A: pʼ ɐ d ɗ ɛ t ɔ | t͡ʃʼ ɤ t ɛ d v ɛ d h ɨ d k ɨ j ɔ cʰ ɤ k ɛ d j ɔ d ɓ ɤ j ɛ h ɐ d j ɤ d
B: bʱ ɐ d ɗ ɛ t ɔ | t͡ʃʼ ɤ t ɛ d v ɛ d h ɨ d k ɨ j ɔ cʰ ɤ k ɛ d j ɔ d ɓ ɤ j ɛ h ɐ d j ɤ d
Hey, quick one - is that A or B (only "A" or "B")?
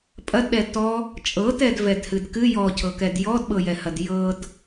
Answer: A